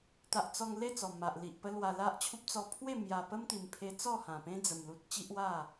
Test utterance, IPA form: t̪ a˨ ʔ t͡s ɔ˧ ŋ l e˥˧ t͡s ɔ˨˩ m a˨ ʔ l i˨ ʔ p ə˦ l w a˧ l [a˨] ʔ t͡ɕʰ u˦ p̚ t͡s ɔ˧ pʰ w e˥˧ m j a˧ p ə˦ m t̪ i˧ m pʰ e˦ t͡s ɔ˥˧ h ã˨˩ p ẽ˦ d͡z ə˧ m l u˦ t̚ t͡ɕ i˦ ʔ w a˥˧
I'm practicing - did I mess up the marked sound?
yes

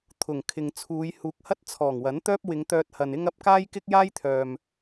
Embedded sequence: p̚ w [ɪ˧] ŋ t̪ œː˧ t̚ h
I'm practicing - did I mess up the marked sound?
yes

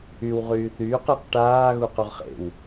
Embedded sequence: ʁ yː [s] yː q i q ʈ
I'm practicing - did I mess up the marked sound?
yes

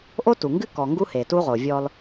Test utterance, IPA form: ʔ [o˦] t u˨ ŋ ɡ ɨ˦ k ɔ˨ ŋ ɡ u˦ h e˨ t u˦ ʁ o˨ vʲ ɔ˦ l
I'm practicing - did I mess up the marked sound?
no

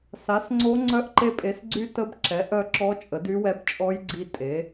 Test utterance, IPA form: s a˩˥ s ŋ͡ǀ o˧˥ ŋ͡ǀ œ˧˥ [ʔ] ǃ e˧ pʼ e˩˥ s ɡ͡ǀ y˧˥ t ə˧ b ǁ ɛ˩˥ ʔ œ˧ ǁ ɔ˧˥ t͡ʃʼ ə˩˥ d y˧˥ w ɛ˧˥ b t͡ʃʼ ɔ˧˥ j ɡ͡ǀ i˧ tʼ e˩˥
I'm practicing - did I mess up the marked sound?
no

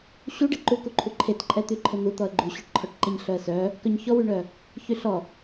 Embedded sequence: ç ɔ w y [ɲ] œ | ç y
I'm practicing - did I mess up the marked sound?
yes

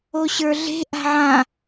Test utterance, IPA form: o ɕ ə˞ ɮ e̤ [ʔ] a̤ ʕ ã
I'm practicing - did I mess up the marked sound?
no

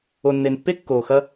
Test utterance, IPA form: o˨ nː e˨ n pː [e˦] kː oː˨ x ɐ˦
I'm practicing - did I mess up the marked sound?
no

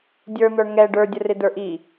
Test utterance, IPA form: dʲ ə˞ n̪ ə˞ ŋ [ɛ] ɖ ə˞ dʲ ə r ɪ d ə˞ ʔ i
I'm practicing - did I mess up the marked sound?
no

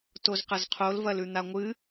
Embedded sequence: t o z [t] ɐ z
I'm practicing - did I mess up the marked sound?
yes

